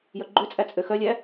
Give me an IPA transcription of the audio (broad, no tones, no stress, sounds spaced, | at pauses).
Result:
j œ ɡ͡ǃ ø t͡sʼ æ t͡sʼ ø x œ lʲ æ